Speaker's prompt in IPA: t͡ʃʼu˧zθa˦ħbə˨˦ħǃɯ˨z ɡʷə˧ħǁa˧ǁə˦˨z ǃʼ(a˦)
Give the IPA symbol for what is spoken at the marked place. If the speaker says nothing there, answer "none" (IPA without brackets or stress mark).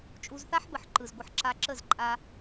a˧